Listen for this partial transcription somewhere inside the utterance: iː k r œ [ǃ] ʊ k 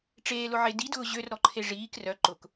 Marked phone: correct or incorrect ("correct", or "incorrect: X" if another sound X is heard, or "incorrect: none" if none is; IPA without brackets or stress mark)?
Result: correct